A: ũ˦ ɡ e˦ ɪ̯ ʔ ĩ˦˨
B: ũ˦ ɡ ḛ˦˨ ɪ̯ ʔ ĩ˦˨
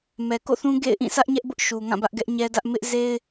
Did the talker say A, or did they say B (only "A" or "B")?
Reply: B